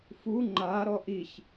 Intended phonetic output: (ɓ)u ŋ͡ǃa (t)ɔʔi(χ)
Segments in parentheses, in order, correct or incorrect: incorrect, incorrect, incorrect

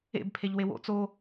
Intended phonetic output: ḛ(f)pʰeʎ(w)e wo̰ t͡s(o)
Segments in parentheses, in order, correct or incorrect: incorrect, correct, correct

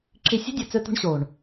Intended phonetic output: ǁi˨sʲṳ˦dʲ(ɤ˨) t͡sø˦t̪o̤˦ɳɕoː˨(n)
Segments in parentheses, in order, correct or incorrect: incorrect, incorrect

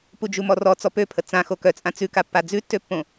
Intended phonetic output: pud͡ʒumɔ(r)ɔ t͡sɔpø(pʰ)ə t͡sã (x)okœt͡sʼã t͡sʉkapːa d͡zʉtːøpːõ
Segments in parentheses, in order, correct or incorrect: correct, correct, correct

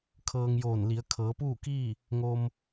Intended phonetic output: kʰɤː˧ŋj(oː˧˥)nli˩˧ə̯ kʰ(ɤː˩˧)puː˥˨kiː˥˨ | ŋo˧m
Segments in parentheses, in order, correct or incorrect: incorrect, correct

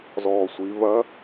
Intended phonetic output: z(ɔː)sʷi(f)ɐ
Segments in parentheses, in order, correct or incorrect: correct, incorrect

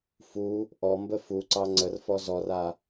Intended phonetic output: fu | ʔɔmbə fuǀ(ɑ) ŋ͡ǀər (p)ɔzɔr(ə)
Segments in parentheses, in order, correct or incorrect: correct, incorrect, incorrect

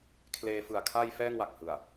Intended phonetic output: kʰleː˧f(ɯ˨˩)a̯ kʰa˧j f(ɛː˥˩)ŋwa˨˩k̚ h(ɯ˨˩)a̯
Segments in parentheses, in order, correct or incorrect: correct, correct, correct

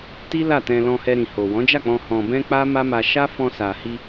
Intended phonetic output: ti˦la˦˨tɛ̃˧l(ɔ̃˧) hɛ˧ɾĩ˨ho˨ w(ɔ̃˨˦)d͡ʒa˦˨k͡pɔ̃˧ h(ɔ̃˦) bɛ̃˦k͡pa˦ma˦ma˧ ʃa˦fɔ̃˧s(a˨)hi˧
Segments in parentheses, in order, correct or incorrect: correct, correct, incorrect, correct

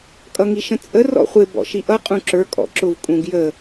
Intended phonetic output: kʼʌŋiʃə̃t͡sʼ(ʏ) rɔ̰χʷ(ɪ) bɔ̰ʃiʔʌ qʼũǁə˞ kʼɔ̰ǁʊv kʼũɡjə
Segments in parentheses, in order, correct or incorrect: incorrect, correct

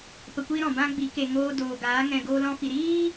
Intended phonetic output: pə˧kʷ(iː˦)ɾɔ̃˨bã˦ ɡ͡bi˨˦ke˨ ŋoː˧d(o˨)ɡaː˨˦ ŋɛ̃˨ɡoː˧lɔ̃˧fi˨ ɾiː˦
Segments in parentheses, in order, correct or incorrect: correct, incorrect

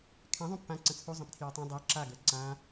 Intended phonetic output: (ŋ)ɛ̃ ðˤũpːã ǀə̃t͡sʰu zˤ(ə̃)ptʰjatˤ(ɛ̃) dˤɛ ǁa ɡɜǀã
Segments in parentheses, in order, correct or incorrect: incorrect, correct, correct

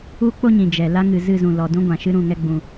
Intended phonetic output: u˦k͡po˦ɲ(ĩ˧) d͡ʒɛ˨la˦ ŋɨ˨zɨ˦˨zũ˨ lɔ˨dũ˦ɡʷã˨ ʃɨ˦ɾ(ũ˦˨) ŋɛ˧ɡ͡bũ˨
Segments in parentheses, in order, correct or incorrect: incorrect, correct

